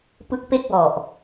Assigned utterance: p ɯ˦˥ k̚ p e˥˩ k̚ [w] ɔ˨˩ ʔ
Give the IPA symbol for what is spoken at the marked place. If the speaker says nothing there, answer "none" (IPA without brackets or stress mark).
w